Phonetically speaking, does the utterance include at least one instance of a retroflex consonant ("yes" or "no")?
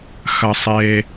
no